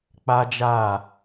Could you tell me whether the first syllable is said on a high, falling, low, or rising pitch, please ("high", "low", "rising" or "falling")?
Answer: high